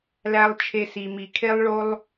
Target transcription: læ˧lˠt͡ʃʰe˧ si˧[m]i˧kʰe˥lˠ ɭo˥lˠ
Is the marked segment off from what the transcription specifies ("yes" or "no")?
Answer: no